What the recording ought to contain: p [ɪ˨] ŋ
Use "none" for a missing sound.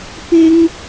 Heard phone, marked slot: ɪ˥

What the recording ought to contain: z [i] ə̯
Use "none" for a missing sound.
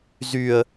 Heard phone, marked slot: y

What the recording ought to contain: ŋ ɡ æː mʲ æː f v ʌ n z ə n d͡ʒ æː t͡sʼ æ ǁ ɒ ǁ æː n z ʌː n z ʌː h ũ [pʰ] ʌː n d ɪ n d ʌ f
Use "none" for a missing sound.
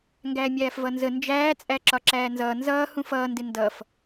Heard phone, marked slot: f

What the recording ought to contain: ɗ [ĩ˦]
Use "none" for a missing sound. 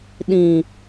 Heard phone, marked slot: ĩ˨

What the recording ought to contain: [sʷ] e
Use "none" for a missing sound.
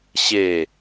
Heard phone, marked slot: ɕ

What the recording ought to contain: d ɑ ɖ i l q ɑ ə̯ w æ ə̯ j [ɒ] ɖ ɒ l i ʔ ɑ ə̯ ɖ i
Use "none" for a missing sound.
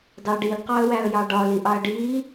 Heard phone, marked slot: ɑ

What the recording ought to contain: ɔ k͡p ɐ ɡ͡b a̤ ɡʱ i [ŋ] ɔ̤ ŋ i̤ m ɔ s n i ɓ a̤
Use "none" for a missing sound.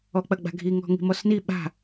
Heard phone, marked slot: ŋ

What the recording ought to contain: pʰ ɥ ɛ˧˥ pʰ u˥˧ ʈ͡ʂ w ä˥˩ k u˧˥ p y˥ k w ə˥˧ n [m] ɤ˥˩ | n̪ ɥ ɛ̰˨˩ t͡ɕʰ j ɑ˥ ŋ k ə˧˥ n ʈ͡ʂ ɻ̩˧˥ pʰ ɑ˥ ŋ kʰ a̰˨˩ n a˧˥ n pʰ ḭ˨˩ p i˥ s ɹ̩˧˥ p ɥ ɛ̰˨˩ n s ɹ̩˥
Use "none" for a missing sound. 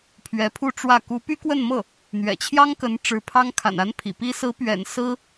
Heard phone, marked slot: m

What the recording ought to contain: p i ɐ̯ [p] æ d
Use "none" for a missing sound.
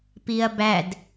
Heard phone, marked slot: b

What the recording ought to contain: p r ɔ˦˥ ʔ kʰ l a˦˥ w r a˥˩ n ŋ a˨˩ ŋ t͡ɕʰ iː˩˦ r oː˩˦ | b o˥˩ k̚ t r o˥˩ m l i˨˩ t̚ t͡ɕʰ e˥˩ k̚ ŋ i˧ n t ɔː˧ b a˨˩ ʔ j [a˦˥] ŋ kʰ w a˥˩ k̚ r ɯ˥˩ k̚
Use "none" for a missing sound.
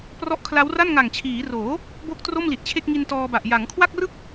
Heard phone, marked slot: a˩˦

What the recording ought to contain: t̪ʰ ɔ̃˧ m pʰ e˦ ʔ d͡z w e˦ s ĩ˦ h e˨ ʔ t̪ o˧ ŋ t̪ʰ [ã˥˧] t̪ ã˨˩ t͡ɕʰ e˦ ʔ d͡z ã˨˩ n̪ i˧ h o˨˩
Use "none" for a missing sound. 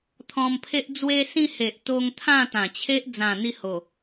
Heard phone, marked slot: ã˥˧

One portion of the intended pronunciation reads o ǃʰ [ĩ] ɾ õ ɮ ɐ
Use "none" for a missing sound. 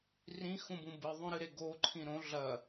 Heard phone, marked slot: ĩ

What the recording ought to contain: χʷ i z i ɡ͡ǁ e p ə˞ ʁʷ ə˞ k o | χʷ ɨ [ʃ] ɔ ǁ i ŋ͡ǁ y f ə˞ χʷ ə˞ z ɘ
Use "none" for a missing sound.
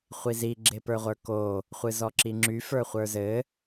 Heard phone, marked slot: z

